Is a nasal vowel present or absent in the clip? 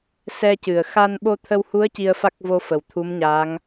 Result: absent